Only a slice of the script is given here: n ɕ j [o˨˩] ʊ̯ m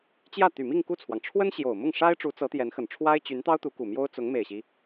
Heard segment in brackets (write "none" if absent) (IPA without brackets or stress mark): o˨˩